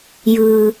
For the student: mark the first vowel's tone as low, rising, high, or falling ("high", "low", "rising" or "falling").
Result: low